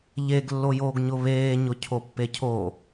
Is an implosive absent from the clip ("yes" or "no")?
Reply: yes